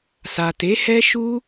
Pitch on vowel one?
low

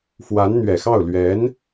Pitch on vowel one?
rising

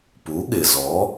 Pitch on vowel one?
rising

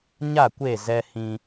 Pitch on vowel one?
falling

